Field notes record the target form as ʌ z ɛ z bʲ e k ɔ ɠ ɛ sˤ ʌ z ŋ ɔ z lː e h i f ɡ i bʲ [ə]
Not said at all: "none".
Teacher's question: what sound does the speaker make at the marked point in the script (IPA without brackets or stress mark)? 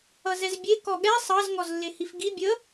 ə